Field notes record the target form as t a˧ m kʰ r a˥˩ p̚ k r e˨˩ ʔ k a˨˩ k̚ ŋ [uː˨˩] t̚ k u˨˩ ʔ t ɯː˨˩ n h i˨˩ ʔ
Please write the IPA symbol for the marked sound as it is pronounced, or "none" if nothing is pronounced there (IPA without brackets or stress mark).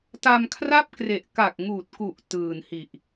uː˨˩